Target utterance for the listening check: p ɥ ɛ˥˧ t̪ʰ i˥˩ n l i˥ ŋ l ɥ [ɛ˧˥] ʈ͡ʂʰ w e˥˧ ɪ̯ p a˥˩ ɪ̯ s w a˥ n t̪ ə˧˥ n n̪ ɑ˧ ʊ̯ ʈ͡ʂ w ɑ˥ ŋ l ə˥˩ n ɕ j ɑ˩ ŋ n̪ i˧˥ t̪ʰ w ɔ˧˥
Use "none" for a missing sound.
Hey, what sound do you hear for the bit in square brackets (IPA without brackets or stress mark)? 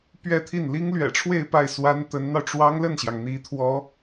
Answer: ɛ̰˨˩